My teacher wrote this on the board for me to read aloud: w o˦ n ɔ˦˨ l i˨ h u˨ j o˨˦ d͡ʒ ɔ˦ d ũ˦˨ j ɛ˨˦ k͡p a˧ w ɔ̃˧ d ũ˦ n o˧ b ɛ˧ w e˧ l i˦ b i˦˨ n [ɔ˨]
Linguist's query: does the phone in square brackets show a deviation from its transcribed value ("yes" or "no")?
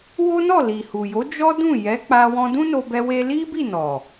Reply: no